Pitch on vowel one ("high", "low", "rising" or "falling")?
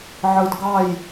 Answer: low